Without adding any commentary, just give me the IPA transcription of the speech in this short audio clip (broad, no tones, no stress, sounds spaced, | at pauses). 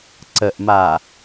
ǀ ə ʔ m a